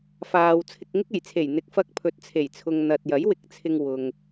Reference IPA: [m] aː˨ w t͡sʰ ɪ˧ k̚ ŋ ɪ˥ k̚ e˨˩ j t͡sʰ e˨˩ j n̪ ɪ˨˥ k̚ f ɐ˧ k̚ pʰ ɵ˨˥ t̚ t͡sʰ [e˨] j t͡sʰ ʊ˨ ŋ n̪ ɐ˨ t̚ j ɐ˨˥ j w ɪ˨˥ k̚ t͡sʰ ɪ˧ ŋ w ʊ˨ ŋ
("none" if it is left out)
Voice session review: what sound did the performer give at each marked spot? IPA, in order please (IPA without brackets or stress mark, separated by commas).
f, e˨˩